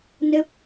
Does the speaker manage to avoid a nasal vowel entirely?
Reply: yes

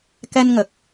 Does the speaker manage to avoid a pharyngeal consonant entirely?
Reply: yes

